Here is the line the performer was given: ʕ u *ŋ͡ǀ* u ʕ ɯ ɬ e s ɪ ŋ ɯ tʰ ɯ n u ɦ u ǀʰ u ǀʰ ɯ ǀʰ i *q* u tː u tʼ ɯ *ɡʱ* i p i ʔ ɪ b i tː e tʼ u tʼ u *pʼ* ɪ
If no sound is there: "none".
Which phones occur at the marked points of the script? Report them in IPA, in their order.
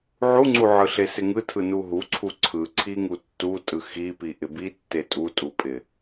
ŋ͡ǀ, ŋ, x, pʼ

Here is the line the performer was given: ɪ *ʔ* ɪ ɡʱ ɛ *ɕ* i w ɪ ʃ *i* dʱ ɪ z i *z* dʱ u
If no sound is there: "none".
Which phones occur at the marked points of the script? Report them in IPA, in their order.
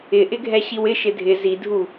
ʔ, ɕ, ɪ, none

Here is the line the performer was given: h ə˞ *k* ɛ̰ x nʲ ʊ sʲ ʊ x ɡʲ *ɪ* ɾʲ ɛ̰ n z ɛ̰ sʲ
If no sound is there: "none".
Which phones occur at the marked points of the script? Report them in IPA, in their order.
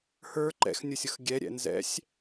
ǃ, ɛ

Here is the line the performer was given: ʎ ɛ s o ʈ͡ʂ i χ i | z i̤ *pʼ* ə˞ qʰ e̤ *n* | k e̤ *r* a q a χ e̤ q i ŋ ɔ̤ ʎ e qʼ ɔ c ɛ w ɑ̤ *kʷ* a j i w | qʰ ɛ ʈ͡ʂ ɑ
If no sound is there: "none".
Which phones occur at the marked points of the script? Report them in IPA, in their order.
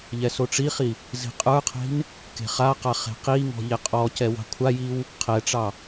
qʼ, n, χ, kʷʰ

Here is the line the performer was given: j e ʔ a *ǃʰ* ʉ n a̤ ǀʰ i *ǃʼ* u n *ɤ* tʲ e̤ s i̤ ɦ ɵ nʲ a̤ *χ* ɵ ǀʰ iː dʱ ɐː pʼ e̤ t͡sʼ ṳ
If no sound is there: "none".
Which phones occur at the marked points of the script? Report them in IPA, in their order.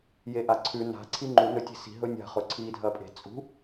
ǀʰ, ŋ͡ǃ, ɵ, χ

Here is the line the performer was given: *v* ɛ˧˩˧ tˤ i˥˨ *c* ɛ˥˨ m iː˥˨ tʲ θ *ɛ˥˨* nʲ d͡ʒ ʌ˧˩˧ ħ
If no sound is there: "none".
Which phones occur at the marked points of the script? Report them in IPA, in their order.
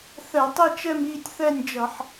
θ, t͡ʃ, ɛ˥˨

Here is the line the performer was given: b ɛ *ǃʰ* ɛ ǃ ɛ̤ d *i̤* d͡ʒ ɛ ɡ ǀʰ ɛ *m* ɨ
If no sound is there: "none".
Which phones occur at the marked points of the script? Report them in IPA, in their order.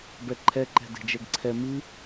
ǃʰ, e̤, m

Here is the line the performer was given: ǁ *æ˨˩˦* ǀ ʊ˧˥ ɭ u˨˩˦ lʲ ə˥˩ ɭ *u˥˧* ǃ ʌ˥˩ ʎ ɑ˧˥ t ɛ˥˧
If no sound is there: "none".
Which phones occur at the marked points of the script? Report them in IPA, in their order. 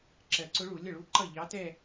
ɜ˨˩˦, u˥˧

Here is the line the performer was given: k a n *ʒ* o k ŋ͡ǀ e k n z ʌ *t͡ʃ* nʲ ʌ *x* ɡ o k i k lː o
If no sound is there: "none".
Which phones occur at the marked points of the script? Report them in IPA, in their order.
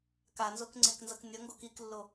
z, k, ŋ

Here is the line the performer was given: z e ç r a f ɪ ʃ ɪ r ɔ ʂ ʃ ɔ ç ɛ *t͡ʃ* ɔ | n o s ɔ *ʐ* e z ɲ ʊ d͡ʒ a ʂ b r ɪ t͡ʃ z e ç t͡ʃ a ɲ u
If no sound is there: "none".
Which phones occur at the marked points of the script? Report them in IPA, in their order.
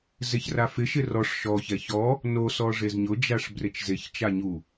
ç, ʐ

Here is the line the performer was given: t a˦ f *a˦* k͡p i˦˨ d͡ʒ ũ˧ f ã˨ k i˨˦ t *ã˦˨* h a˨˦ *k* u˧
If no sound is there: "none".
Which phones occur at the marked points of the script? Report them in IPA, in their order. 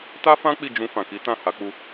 ã˦, ã˦˨, k͡p

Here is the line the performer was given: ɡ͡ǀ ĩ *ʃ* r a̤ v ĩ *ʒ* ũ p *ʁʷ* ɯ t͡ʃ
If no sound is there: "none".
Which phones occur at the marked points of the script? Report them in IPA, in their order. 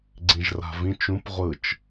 ʒ, t͡ʃ, ʁʷ

